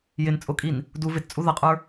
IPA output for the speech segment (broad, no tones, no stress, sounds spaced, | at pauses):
j ɪ n t͡sʼ ʊ kʼ i n | d u v ɪ t t͡sʼ u ð ʌ qʼ ə˞